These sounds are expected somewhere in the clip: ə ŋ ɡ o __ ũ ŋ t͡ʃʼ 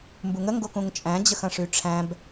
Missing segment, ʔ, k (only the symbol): k